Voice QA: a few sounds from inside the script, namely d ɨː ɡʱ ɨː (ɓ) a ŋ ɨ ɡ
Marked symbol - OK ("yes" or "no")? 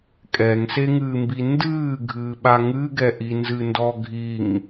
yes